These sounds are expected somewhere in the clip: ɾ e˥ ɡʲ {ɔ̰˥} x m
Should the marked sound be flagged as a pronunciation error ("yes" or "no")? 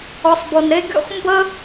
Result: no